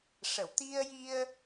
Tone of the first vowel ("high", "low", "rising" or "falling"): low